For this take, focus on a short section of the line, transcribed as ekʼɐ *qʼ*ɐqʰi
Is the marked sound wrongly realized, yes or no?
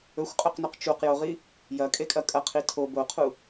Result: yes